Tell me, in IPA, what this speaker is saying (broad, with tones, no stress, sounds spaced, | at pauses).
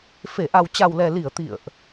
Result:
f e˧˩ ʔ a˨˩ w t͡ɕ a˨˩ w l ɛ˨˩ l i˧˩ ə̯ t̪ ḭ˧˨ ə̯ ʔ